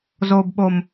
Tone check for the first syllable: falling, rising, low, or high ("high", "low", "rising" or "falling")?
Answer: low